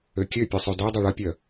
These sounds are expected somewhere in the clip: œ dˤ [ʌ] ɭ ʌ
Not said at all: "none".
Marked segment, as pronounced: ʌ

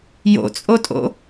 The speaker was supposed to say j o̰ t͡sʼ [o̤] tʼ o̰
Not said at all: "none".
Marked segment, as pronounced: o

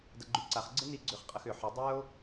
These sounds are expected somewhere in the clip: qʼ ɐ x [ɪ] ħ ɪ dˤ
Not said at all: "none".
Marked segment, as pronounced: ʏ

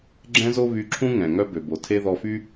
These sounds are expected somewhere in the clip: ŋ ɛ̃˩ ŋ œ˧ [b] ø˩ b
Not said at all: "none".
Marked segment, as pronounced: b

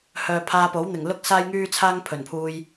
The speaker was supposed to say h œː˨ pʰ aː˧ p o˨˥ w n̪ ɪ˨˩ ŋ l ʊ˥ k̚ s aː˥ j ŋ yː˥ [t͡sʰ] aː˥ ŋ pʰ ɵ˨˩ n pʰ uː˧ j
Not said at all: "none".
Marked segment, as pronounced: t͡sʰ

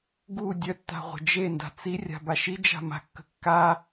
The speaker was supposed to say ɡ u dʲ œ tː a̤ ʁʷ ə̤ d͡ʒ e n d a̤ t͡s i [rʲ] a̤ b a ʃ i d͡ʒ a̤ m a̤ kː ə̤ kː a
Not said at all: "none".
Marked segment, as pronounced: rʲ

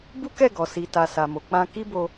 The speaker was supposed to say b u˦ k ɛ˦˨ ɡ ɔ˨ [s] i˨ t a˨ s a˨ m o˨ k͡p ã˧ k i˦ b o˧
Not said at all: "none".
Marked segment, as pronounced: s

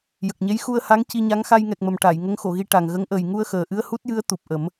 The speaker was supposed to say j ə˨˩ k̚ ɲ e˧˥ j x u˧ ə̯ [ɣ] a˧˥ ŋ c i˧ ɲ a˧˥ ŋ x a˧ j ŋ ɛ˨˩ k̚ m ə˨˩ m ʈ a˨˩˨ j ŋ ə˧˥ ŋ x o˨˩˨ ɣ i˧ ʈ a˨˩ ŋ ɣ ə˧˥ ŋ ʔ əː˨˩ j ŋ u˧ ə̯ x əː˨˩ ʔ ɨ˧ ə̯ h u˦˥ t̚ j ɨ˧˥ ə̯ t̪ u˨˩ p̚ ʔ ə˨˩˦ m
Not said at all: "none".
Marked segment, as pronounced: h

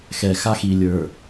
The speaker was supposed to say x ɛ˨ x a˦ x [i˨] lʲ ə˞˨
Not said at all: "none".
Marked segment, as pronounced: i˨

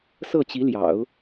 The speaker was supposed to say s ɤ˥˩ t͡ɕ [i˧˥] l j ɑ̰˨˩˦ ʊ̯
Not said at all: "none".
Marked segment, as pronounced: i˧˥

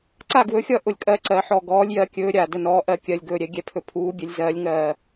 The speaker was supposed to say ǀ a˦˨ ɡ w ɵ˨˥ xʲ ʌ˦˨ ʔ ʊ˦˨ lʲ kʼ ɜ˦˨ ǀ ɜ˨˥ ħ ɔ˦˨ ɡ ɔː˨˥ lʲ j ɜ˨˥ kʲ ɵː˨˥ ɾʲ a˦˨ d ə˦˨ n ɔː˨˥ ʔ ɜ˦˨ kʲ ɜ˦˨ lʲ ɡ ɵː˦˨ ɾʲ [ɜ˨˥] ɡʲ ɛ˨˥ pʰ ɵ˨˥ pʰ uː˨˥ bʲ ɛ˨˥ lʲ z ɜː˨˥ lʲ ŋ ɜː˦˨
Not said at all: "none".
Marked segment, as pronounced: ɛ˨˥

